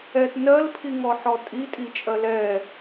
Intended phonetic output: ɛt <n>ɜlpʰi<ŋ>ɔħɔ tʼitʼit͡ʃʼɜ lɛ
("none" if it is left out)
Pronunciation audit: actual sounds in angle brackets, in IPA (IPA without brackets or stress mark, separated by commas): n, ŋ